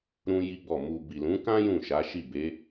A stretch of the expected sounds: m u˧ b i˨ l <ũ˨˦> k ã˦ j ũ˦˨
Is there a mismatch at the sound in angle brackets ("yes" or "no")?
no